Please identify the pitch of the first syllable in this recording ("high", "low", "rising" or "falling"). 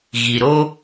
low